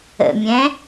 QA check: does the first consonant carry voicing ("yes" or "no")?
yes